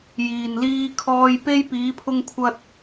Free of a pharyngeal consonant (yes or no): yes